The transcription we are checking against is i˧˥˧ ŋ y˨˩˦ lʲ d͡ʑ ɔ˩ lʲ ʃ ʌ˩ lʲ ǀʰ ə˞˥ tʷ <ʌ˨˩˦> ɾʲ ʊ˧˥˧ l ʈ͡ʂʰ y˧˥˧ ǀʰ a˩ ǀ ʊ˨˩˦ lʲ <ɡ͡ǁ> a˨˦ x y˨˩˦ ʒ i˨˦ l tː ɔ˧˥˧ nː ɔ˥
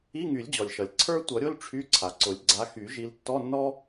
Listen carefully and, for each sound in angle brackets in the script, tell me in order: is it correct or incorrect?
correct, incorrect

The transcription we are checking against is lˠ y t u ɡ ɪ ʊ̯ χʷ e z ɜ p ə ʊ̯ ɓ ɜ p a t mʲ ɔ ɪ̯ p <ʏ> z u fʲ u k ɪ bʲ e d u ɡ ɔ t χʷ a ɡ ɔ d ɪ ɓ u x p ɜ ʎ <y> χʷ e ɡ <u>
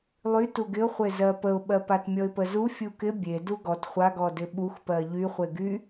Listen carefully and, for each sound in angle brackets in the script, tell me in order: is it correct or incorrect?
incorrect, correct, incorrect

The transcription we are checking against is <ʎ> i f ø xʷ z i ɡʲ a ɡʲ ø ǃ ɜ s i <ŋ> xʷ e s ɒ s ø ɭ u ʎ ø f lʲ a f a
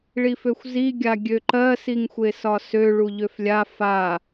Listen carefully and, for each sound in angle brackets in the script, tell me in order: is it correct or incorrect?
incorrect, correct

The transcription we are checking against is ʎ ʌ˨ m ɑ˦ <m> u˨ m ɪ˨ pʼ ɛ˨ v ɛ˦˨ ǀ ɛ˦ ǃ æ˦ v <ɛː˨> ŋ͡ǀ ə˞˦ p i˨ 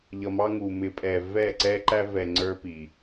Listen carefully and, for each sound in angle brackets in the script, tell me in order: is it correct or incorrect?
incorrect, incorrect

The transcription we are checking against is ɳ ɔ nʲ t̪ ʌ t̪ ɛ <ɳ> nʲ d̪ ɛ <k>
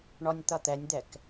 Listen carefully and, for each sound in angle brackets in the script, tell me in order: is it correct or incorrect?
incorrect, correct

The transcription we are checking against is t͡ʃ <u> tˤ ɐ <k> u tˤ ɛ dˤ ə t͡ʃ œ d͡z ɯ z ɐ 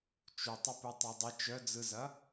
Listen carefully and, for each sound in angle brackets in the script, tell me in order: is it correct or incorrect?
correct, incorrect

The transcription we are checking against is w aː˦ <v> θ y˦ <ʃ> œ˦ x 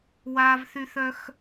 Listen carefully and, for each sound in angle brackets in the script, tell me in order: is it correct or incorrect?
correct, incorrect

